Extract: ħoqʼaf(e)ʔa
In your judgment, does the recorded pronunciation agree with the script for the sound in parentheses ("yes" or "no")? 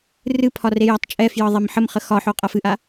no